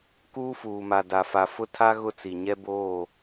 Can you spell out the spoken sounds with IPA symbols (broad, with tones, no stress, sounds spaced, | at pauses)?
k uː˦ f uː˨ m a˨ d a˨ f a˨ f ʊ˦ tʰ a˦ ɣ ʊ˦ t͡s i˨ ɲ ɛ˦ b oː˦˨